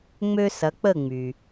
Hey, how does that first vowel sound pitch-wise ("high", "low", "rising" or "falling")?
high